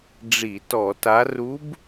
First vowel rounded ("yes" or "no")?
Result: no